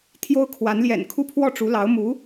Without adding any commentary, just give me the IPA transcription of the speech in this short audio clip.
t̪ʰ j o˥ ʊ̯ kʰ w a˧˥ n l j ɛ̰˨˩ n kʰ u˥ pʰ w ɔ˥˩ ʈ͡ʂ u˧˥ l ɑ˧˥ ʊ̯ m u˧˥

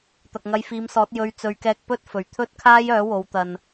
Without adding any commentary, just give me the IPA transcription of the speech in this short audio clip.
t̪ ɐ˨ k̚ ŋ ɐ˧ j f iː˨˧ m s ɔː˨˥ t̚ j ɵ˧ ɥ t͡s ɵ˨˧ ɥ k ɛː˧ k̚ p ɵ˥ t̚ f ɵ˨˩ ɥ t̪ʰ ɵ˥ t̚ kʰ aː˥ j œː˨˥ w o˨˧ w t̪ ɐ˨ n

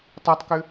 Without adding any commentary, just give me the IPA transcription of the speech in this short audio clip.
tˤ ɛ tˤ k ʏ

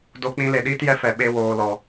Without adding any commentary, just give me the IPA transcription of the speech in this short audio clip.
d o˧ k͡p ĩ˧ l e˨ ɗ iː˦ t j ɛ˦ f ɛ˨ ɓ e˧ w oː˨ l ɔ˨

